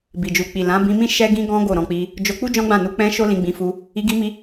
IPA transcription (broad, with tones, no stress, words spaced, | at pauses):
bi˨d͡ʒu˨k͡pi˨ lã˨˦bĩ˧mĩ˦ ʃɛ˦ɡĩ˦ɡɔ̃˦ ɡo˦˨ɾɔ̃˧k͡pi˧ | d͡ʒo˧k͡pu˦ d͡ʒɔ̃˦ɡ͡bã˦˨nu˧ k͡pɛ̃˦ ʃo˦lĩ˧ɡ͡bĩ˧fu˧ | i˧ɡi˧mi˧